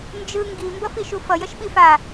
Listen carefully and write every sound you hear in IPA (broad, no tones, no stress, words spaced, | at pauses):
nd͡ʒɯ ŋɡi mbʌfiʃufʌ jʌʃɓifa